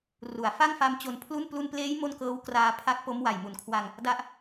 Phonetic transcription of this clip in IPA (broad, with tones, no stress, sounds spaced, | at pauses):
r u˩˦ a̯ f a˥˩ ŋ f a˦˥ m t͡ɕ o˧ n pʰ l u˥˩ n p l u˧ n p l eː˦˥ j m o˥˩ n k ɤː˦˥ w k r aː˧ pʰ a˦˥ k̚ p o˦˥ m w a˨˩ j m u˨˩ n kʰ w a˧ ŋ | d a˥˩ ʔ